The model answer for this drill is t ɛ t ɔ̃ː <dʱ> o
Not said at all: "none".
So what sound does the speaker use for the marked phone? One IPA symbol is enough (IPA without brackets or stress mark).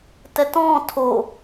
tʰ